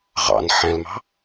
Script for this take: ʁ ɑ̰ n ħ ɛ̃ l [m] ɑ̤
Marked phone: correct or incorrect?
correct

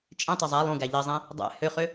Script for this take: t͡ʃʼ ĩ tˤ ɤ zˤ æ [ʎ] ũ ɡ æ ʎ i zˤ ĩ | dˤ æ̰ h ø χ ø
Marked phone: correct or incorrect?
incorrect: lˠ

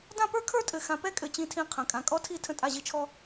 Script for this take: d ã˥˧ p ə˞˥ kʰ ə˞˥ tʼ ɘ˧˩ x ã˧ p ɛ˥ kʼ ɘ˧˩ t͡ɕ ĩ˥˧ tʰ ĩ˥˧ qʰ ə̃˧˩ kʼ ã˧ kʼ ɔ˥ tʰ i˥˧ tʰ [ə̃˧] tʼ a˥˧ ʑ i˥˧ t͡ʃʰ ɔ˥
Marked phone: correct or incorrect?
incorrect: ə̃˥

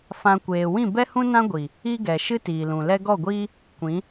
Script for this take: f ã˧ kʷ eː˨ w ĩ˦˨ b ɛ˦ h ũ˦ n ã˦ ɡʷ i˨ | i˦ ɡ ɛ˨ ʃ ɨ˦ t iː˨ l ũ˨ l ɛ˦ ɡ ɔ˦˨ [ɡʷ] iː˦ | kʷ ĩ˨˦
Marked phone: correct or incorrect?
correct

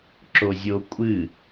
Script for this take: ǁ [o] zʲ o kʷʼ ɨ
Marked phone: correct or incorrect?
correct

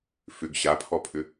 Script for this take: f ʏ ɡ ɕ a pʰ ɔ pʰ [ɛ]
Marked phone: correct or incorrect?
incorrect: ʏ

